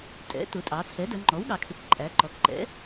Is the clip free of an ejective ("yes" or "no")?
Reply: no